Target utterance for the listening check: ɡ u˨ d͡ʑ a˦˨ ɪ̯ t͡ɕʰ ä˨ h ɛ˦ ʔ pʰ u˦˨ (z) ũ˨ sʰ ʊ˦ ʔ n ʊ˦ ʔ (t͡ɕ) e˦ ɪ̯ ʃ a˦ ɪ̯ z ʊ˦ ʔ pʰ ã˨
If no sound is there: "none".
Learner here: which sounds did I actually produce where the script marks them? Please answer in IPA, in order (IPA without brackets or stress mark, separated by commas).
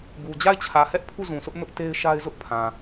z, t